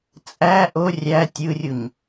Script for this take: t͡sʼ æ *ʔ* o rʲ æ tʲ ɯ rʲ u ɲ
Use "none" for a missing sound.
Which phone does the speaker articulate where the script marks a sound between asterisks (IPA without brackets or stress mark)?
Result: ʔ